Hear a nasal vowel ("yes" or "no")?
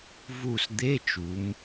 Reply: no